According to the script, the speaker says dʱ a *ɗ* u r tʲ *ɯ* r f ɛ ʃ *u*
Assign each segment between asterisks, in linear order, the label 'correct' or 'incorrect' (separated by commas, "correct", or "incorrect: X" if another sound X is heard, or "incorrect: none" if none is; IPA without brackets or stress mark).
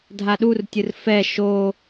correct, correct, incorrect: o